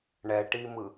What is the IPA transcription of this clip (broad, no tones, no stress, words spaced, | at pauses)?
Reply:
ɳɛʈimɯ